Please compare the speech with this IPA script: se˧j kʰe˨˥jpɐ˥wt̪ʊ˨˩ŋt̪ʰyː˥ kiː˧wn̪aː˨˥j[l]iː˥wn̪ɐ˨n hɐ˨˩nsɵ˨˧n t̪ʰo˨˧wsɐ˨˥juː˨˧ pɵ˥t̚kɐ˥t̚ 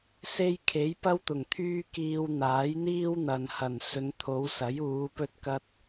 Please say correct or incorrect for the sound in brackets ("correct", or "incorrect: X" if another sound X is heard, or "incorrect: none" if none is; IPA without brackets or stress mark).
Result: incorrect: n̪